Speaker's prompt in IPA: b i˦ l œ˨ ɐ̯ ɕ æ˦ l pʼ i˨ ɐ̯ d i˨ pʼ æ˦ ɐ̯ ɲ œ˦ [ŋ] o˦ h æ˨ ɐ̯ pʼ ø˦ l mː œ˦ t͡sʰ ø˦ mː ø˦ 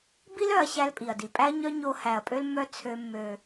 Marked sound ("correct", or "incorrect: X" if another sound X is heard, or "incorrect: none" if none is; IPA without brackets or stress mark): incorrect: ɲ